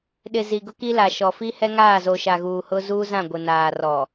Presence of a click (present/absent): absent